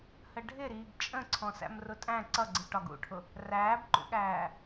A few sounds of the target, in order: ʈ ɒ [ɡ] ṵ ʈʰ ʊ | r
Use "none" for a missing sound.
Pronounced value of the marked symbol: ɡ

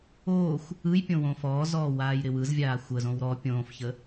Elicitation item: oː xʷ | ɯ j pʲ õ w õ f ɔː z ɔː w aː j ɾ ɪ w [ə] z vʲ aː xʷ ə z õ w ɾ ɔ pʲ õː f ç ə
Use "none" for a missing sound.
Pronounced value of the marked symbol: ɯ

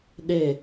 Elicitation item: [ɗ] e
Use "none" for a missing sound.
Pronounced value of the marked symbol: ɗ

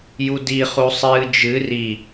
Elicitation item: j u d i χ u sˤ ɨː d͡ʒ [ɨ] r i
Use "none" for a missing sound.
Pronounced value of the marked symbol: ɨ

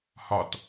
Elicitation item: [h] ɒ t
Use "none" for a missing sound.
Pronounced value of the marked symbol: h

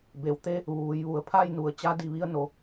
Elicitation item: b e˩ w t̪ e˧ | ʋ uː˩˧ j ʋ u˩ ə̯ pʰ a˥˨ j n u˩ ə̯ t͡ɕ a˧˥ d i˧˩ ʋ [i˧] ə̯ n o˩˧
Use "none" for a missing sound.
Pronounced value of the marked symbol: i˧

